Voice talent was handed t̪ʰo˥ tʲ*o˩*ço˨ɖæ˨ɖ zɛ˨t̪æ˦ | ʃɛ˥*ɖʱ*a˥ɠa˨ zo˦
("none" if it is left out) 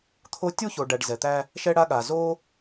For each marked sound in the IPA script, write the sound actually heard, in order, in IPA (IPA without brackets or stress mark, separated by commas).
o˥, ɽ